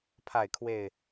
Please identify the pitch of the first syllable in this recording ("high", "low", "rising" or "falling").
falling